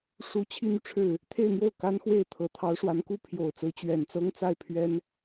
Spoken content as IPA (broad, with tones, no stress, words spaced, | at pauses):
ʂu˧˥ t͡ɕʰi˥n̪y˨ʈ͡ʂʰɻ̩˥˩ | t̪ʰe˥˧ɪ̯n̪jo˥˩ʊ̯ ka˥nxwe˥˩ɪ̯ t̪ʰɤ˨˩t̪ʰɑ˧˥ʊ̯ʂwa˧˥nku˥ pʰjo˨˩ʊ̯t͡sɹ̩˧˥ t͡ɕɥɛ˨˩nt͡sɤ˥ŋt͡sa˥˩ɪ̯ pʰɥɛ˥n